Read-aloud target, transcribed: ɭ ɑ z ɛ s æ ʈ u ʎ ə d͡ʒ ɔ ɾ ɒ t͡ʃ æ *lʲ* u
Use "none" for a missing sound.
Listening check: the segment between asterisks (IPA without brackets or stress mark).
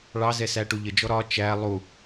lˠ